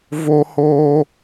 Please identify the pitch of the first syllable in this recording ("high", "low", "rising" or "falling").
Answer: high